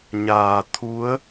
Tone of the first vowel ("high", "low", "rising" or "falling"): low